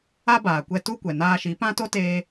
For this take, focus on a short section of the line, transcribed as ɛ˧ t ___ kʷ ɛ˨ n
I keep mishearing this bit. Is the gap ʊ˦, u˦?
u˦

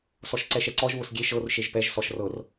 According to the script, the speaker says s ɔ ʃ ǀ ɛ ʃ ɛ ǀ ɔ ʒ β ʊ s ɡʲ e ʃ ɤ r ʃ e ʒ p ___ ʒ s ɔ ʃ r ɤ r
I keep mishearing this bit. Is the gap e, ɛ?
ɛ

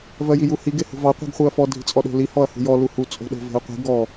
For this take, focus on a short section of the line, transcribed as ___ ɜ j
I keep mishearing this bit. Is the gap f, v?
v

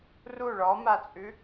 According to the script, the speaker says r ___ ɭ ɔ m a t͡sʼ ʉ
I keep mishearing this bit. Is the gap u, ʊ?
u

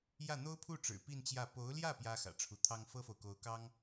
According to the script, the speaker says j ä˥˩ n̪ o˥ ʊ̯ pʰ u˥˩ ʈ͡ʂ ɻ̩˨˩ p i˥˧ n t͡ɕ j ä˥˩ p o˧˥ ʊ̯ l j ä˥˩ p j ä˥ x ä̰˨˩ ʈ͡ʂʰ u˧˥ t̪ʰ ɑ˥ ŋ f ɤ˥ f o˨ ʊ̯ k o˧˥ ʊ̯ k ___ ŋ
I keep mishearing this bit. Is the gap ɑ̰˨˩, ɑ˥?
ɑ˥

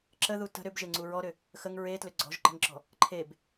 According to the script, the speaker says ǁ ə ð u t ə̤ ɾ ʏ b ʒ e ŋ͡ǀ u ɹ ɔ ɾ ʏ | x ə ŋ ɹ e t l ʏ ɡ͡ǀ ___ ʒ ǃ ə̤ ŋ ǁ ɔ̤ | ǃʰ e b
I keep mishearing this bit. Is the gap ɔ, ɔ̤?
ɔ̤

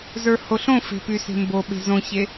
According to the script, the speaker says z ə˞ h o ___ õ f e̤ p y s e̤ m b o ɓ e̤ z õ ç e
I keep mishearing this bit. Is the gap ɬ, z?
ɬ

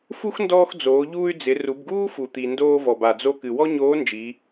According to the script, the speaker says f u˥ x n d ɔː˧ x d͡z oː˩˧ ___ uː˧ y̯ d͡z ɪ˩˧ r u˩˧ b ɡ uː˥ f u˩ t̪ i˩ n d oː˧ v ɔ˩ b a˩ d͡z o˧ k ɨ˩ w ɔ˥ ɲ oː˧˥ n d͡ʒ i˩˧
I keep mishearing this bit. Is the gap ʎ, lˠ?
ʎ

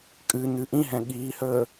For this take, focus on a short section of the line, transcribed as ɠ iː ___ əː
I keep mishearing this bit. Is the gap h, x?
h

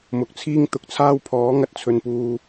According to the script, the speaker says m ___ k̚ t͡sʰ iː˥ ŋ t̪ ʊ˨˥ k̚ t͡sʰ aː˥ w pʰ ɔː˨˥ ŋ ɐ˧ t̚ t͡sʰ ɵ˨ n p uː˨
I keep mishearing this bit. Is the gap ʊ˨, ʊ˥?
ʊ˨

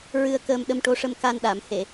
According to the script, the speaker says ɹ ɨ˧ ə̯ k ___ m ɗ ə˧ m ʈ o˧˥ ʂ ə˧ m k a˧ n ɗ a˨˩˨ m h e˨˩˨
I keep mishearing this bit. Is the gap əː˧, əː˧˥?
əː˧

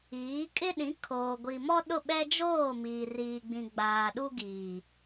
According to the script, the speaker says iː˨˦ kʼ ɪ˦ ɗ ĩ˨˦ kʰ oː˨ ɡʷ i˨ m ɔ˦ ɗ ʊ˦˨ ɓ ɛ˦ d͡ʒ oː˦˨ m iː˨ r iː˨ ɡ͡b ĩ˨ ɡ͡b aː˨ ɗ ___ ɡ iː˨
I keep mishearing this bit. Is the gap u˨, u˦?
u˦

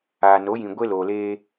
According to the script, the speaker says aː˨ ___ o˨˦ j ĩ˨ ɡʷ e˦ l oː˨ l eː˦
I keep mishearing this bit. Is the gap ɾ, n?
n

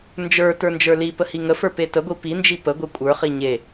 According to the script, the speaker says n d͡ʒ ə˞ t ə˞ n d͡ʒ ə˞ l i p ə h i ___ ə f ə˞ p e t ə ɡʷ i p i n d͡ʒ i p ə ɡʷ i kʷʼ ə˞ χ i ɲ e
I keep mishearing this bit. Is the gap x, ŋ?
ŋ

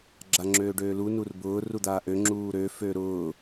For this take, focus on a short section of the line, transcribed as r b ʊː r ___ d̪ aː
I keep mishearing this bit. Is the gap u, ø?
u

